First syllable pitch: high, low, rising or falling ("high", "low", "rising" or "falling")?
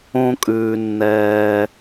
high